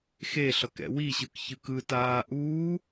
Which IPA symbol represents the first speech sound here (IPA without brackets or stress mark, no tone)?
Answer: x